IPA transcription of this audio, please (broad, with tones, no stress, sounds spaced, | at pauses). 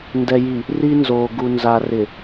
n d ɛ˨ j i˨ | r i˦ n z o˨ ɡ u˨ n z a˨ r ɪ˨